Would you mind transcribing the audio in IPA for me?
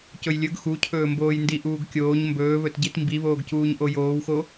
c ɵ j lʲ ɵ ɡ x u cʰ ɵː m b oː j n d i ʔ uː ɡ kʲ oː ɲ m b ɵː β ɵ t ɟ i t m b i β oː ɡ c uː ɲ ʔ o j oː w x o

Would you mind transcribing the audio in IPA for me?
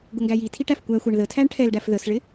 ɡ ʊ ŋ ɡ æ j i tʰ i ʈ æ f kʷ æ xʷ æ ɳ ð ə tʰ æ ɳ ʈʰ ɛ l ɖ æ f ð ə s ɭ ɪ

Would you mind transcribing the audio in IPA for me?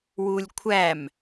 w u lʲ kʷʰ æ m

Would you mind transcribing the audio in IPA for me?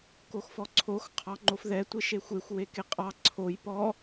k o x f ɔ ǀʰ o x qʰ ɑ ŋ͡ǃ o f ð ɛ tʷ e ʃ e xʷ e xʷ w e k e qʼ ɑ ǀʰ o j p ɔ

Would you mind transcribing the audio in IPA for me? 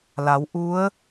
l a˩˧ w ʔ u˧˥ ə̯

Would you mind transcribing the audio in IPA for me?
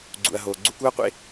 ɡ͡ǀ ṵ˨ ɐ̯ ɦ oː˨ ɡ͡ǀ u˧ k uː˦ ɐ̯ qʷ ḛ˦

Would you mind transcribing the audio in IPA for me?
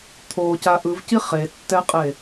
t̪ʰ o c a ʔ ɯ v c i χ e tː ɛ qʼ e

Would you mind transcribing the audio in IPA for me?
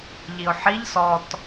ʎ i ʊ̯ ħ i ʎ s ɔ t

